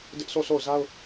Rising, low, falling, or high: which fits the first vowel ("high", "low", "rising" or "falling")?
high